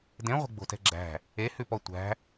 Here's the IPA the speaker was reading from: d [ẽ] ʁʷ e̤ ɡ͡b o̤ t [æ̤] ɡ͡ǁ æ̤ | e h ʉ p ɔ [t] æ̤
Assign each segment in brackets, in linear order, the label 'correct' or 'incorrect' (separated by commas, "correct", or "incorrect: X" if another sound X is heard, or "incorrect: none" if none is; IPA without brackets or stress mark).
correct, incorrect: ɛ̤, incorrect: tʷ